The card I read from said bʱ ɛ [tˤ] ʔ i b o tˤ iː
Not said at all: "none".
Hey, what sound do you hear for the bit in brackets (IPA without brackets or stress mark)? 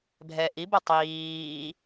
none